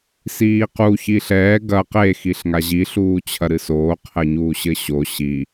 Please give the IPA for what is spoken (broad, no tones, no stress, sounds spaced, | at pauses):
s iː q u ç iː ɬ ɛː ɡ ɐ q e x i ɬ ŋ a ʑ i ɬ uː t͡ɕʰ ɐ ɾ ɨ s oː qʰ ɘ ɲ uː ɕ ɘ ɕ o ɕ i